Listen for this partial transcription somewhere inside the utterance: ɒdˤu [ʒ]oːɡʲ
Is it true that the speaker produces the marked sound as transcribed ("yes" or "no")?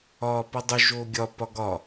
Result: yes